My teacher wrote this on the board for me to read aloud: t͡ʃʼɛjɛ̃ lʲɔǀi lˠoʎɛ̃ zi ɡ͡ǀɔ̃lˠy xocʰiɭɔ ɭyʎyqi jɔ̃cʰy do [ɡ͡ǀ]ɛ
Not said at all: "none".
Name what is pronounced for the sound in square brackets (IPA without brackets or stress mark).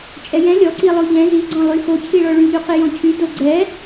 ɡ͡ǀ